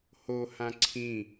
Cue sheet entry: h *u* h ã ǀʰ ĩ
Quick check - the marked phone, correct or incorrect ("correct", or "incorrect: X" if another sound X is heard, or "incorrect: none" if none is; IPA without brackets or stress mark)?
incorrect: o